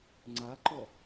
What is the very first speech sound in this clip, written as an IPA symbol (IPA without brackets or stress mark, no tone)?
ŋ͡ǀ